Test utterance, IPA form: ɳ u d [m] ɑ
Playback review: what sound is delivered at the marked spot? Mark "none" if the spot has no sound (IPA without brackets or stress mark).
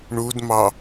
m